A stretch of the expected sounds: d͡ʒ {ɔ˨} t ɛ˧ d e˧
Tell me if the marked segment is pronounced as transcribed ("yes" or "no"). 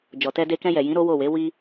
yes